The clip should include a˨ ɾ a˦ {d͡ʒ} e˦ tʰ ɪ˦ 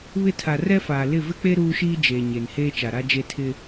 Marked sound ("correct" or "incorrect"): correct